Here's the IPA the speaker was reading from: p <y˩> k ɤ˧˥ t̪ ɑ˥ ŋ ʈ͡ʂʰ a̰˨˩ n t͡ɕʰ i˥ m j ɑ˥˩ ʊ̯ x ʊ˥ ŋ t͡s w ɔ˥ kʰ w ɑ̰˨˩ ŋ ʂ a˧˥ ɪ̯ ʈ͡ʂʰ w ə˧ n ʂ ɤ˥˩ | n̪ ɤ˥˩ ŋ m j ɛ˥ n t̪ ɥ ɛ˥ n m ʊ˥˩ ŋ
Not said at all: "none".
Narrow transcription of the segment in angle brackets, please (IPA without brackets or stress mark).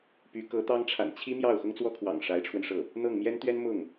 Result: y˧˥